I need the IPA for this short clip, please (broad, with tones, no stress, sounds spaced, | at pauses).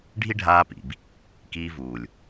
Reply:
ɖʱ i˦ ɖʱ aː˧ p ḭ˨ b | k iː˧ v uː˨ lʲ